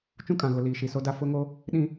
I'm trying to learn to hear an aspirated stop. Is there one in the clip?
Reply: no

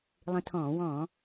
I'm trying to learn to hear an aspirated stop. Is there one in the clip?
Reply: yes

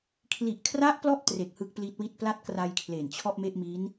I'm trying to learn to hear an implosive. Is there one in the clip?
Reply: no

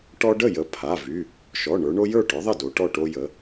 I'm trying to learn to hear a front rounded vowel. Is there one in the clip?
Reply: yes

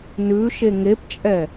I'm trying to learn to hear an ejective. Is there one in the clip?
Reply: yes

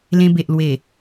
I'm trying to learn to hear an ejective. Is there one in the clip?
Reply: no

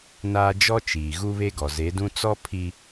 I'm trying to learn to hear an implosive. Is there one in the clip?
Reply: no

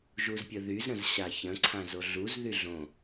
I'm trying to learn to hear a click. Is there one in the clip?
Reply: yes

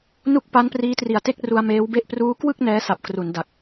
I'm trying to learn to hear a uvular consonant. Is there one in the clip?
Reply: no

